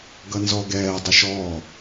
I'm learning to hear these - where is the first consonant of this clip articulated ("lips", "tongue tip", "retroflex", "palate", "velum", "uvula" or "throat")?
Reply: velum